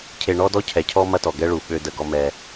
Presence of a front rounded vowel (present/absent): present